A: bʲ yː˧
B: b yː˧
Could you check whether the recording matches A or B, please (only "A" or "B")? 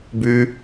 B